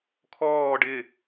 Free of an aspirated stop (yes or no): no